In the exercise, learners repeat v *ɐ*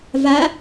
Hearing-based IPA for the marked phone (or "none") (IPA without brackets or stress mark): a